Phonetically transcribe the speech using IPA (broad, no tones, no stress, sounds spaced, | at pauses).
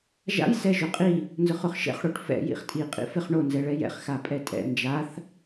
ʒ a̰ j s ɛ ʒ ʊ qʼ i | n z ʊ χ ʊ χ ʃ ɛ̰ χ ɽ o ʈ f ɛ̰ j ḭ χ tʼ i qʼ ḭ f ɪ χ ɳ o n z ɛ ɭ ɛ j ɛ̰ χ x a pʼ ɛ tʼ ɛ̰ n d͡ʒ a θ